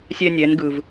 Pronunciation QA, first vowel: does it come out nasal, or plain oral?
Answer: oral